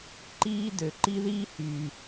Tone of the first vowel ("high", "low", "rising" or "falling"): high